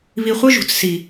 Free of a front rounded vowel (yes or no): no